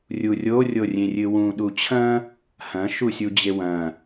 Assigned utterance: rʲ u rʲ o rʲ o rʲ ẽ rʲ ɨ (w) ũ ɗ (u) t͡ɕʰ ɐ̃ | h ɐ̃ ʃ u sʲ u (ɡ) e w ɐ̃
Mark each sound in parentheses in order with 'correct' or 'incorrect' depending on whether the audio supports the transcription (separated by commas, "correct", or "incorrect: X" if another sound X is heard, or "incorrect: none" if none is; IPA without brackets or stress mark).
correct, correct, incorrect: d͡ʑ